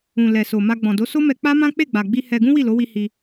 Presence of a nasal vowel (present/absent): present